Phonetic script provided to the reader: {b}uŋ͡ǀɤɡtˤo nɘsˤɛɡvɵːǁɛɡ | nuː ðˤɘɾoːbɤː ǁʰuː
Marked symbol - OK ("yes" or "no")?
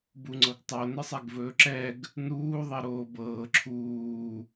yes